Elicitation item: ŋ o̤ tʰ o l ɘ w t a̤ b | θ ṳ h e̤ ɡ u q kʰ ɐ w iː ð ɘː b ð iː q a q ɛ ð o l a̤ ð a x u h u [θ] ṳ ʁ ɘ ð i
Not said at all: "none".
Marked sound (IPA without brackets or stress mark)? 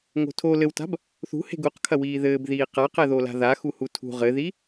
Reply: tʰ